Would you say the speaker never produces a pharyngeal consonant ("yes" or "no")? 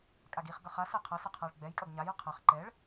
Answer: yes